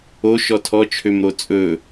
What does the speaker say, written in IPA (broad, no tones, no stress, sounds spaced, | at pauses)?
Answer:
o ʃ ɔ tʰ ɔ t͡ʃʰ ø m ɾ o t͡sʼ ɵ